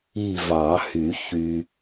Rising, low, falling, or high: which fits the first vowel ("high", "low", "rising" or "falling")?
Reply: falling